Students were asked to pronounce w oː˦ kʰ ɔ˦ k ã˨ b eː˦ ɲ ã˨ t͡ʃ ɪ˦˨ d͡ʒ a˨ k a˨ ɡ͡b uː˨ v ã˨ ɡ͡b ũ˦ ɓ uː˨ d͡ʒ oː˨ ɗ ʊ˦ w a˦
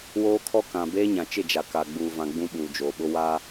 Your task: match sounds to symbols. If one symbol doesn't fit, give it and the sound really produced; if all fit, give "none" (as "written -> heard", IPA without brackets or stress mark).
ɗ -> ɓ